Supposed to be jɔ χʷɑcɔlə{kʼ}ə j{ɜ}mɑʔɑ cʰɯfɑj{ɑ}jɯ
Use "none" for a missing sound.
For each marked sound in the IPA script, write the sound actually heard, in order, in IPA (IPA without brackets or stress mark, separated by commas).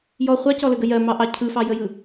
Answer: ɡ, ɜ, ə